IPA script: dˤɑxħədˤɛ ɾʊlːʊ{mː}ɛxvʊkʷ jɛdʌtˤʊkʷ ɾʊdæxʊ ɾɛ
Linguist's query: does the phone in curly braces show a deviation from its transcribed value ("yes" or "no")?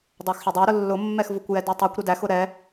no